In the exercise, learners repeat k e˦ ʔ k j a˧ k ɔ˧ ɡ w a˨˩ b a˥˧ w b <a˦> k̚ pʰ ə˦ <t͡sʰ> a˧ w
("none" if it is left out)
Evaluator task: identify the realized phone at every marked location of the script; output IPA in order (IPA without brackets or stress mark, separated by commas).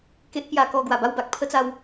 a˨, t͡s